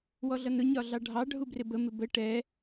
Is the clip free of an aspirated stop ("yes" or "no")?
yes